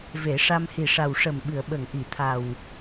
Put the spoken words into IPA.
ve˨˩˦ʂa˧m hi˨˩ʂa˨˩wʂə˨˩m ɓɨ˨˩˨ə̯ɓə˨˩˨ŋʔi˨˩˨t̪ʰa˨˩w

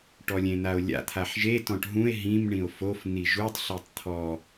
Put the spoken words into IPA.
ʈɔlʲẽn̪ao̯lʲa̰ t̪ʰaħʒe tɔ̃ʈɦũe̯ ɦĩm ɳĩo̯fof n̪iʒutˤ ɬitˤt̪ʰɔ

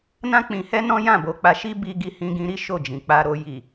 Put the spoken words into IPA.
nã˦k͡pĩ˧hɛ˦ nɔ̃˦jã˦˨bo˨˦k͡pa˧ ʃi˦ bi˧ ɡi˧hĩ˧ɡĩ˧ɾi˦ ʃo˦˨d͡ʒĩ˨k͡pa˧ɾo˧ ji˨

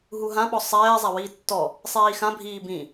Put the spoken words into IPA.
ɦuɦã ɓɔsˤɛː zˤawiːtːɔ | sˤiːxã bʱiːbĩ

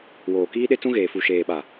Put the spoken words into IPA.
woː˨ kiː˦ɗe˦t͡sũ˦ ɣeː˨fu˨ʃeː˨ɓa˨

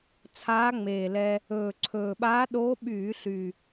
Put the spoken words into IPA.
t͡sʰaː˧˥ŋ͡meː˨˩lɛ˧ | ɵː˨˩ǀʰɵː˨˩ɓaː˧˥ɗoː˧˥ ɓyː˧˩˧ɬy˨˩

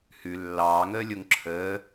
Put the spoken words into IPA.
hʉ lːɑːŋəːlʲoŋ ǁʰəː

